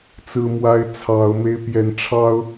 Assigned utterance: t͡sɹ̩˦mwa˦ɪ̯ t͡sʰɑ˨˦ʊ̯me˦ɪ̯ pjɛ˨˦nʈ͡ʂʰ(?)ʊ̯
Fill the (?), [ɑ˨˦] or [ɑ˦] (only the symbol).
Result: ɑ˦